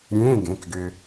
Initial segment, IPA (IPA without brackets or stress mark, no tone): ɾʲ